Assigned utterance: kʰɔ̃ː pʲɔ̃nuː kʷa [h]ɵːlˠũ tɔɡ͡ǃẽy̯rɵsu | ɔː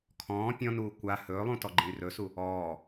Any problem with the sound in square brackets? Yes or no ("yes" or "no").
no